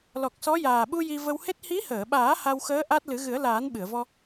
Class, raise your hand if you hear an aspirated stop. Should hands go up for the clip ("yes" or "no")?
no